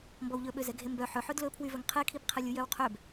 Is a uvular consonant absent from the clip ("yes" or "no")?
no